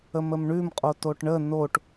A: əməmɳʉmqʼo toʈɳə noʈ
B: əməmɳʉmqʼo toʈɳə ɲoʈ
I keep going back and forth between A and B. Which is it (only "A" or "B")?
A